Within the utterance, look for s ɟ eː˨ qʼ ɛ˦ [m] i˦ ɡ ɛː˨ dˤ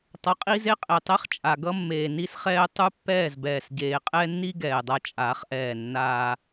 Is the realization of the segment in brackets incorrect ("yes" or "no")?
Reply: yes